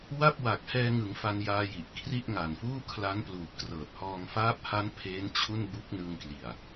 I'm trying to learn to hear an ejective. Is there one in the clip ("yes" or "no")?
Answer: no